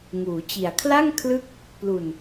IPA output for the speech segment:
ŋuː˩˦t͡ɕi˨˩a̯ kʰla˥˩ŋ kʰlɯ˥˩k̚ | plu˨˩n

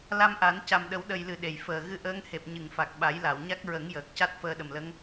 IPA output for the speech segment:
la˧mʔa˨˩˦n ca˨˩mɗə˨˩˦wɗə˨˩jlɨ˨˩˨ ɗe˨˩˨jfəː˨˩ ɣɨ˧ʔəː˧˥ŋ he˨˩p̚ɲɨ˨˩˨ŋfa˨˩k̚ ɓa˨˩˦jla˨˩˨wɲa˦˥k̚ ɹə˨˩˦ŋjəː˨˩k̚ ca˦˥t̚fəː˧ɗə˨˩mlə˧˥ŋ

